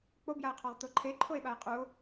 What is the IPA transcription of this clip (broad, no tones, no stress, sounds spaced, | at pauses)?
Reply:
k͡p o b j a e̯ qʰ ɒ ʁ t̪ o ǃʰ e ǃʰ o e̯ ɓ a e̯ qʼ u o̯